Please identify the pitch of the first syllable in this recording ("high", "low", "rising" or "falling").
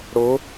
rising